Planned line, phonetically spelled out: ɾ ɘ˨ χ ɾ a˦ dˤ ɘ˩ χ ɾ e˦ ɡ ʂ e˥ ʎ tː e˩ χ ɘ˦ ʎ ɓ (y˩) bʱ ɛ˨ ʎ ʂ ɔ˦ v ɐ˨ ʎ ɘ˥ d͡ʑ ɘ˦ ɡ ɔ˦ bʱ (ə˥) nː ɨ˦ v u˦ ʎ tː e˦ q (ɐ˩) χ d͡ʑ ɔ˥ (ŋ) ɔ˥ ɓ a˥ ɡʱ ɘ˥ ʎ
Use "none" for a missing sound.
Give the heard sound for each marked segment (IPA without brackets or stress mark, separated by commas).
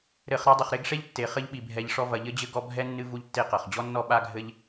i˩, ɛ˥, ɐ˩, nː